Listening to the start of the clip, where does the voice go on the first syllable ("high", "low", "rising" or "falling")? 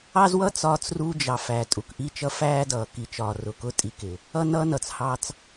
high